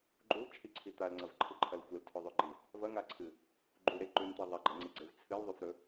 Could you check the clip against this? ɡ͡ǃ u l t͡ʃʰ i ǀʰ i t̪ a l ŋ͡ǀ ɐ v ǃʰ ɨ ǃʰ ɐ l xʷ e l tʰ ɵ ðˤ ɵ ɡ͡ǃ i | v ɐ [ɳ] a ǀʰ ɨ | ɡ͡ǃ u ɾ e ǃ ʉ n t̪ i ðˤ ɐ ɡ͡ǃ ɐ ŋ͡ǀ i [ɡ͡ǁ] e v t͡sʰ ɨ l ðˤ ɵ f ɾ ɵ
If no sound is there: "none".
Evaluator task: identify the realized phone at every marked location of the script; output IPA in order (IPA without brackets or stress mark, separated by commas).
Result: ŋ, ɡ͡ǀ